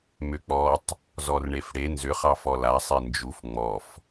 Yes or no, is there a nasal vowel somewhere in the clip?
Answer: no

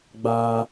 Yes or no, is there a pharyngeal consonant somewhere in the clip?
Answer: no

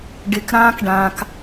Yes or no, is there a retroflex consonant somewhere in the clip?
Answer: yes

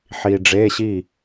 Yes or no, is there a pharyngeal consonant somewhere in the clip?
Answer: yes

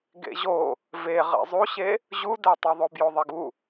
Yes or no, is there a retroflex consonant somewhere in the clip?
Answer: no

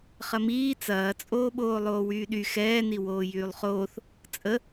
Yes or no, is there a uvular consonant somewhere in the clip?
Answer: yes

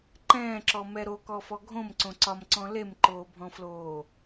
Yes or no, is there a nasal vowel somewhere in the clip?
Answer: yes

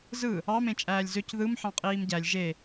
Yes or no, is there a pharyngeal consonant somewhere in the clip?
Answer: yes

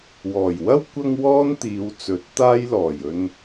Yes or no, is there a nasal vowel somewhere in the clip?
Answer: no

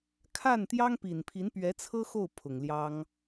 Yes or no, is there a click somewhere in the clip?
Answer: no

